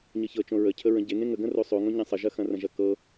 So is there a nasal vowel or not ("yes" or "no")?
yes